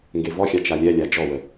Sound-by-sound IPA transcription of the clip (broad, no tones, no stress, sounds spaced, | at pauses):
ŋ ɡ e v ɔ xʲ a t͡ʃ a lʲ ɛ lʲ a d͡ʒ ɔ w ə